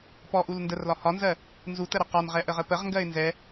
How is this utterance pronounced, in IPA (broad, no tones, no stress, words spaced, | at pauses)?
pɔʔul ndərlɒ hɒnzɜ | nzutəɾə qɒnʁɛʔəʁə pəʁŋɡɜɪ̯ nzɛ